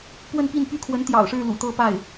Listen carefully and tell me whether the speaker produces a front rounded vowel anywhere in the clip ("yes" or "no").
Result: yes